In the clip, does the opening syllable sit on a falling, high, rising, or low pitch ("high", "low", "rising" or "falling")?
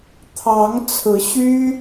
rising